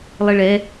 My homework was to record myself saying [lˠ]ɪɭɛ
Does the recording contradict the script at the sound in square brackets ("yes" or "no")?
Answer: no